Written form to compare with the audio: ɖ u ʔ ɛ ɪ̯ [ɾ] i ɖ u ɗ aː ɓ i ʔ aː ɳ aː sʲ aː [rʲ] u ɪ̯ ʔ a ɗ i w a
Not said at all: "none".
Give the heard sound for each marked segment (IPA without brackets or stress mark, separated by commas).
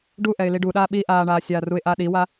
l, r